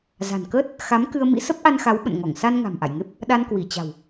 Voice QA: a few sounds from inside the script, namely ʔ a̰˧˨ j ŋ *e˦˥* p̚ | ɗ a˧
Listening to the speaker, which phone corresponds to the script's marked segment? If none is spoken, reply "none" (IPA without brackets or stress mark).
e˦˥